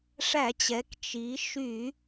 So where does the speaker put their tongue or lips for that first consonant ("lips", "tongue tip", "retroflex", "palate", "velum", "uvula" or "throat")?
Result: retroflex